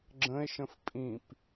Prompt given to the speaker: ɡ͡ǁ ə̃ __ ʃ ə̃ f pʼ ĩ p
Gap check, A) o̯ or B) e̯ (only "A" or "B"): B